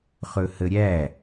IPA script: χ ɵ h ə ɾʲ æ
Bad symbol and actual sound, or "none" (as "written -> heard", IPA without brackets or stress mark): none